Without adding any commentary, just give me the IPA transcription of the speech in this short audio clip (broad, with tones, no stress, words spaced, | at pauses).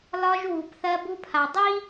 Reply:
lɒ˦ʒ wu˨˦pθɜ˦bu˦pʰa˨ dˤi˦